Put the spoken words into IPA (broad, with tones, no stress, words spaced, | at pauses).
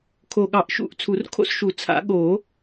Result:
kʰo˨˩ɠɑ˨˩˦ʔʃṵ˨˩˦ʔ t͡sʰu˨˩˦rkʰo̰˥˧sʃu˨˩˦ t͡sʰa̰˨˩˦ ɠo˨˩˦